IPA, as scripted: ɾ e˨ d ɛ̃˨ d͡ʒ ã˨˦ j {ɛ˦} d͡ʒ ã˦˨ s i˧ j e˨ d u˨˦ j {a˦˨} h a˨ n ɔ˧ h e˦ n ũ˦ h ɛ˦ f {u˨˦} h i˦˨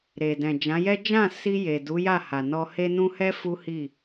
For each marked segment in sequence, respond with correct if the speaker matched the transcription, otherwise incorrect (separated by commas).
correct, correct, incorrect